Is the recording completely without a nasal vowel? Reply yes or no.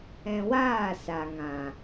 no